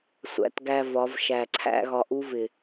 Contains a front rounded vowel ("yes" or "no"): no